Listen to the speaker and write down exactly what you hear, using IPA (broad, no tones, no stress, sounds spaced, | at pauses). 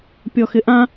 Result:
pʲ ɔ x ɪ ʔ ã